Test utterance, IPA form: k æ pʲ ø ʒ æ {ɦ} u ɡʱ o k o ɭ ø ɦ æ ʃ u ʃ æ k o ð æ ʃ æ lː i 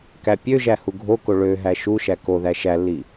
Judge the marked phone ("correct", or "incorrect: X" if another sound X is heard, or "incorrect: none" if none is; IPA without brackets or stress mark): incorrect: h